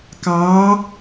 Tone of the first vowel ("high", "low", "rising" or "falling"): rising